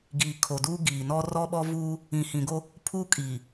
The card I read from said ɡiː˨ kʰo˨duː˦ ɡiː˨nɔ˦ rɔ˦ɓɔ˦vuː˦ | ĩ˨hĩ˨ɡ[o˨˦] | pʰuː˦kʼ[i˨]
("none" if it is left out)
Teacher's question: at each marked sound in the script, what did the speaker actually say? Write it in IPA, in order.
o˦, iː˨

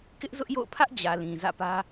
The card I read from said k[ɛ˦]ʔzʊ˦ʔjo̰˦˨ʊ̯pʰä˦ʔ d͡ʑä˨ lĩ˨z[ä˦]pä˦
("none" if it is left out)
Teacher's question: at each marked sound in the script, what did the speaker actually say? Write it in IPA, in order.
ɪ˦, ä̰˦˨

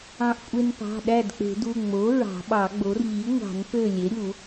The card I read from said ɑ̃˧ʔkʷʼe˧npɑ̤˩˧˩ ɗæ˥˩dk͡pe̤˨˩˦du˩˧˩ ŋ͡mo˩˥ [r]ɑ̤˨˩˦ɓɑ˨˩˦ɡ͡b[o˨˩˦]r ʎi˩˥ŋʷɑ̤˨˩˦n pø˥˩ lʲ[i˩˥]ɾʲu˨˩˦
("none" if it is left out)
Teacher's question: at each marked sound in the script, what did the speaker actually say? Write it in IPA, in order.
ɹ, o˩˥, e˩˥

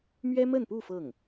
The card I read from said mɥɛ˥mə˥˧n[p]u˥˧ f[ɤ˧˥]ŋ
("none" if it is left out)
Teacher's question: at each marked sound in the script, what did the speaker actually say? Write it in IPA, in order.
p, ɤ˥˩

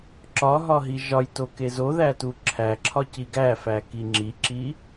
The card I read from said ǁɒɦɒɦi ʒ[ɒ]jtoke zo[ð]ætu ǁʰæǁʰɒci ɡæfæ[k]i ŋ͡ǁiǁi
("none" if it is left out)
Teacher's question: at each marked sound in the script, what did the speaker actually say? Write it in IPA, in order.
ɒ, ð, k

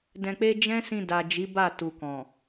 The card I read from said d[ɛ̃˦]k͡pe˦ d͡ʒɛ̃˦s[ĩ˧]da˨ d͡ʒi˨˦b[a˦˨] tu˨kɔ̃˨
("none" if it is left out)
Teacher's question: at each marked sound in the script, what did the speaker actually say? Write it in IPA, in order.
ɛ̃˧, ĩ˧, a˦˨

